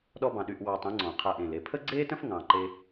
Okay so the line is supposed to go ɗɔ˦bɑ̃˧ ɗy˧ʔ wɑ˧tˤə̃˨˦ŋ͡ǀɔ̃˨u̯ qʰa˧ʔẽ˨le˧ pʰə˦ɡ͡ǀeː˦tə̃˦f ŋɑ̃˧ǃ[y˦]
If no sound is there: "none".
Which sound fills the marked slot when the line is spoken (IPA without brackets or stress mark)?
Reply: e˦